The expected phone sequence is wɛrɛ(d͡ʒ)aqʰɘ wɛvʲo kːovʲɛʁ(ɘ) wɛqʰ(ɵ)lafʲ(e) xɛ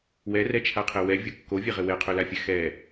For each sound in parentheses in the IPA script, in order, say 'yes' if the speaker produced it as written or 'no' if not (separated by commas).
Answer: no, yes, yes, no